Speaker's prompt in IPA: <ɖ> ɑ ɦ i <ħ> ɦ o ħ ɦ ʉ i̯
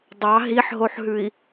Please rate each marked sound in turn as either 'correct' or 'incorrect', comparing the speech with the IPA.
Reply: incorrect: dˤ, correct

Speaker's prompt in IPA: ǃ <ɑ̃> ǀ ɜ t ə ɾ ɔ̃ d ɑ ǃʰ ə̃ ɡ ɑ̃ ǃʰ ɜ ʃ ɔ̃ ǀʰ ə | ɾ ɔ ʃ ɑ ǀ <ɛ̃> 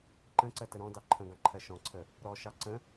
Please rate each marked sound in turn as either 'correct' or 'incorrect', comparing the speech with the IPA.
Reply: incorrect: ə̃, incorrect: ə̃

